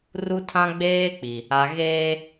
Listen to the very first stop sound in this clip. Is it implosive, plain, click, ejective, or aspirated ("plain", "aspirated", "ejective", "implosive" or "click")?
aspirated